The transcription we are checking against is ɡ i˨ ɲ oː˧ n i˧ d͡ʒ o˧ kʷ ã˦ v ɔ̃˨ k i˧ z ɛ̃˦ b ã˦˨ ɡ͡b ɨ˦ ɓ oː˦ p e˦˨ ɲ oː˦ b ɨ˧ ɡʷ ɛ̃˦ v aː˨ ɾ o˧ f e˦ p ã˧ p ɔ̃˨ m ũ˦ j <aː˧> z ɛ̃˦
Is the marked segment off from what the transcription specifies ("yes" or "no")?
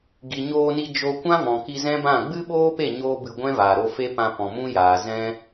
yes